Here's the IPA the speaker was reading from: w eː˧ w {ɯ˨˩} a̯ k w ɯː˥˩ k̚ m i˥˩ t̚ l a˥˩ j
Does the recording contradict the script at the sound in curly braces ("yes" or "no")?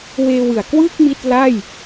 no